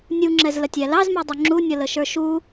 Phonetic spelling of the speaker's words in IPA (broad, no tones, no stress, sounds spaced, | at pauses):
nʲ u ŋ͡ǁ ɛ z l ə tʲ æ l ɑ z m ɛ dˤ u ŋ͡ǁ u nʲ ʌ l ə ʃ ə˞ ʃ u